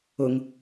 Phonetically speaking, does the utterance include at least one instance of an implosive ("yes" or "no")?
no